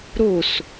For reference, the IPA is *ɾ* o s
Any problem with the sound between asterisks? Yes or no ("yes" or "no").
no